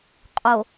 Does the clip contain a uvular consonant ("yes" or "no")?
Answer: yes